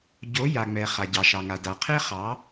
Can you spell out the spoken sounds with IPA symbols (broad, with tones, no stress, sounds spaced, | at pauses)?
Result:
ɟ o˨˦ j a˨ ŋ͡m ɛ˨ χ a˨ ɟ ɑ˨ ʃ ɑ˨ ŋ a˨ d a˨ qʰ e˦ χ ɑ˨˦